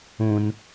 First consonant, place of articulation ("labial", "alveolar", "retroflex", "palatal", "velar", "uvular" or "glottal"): alveolar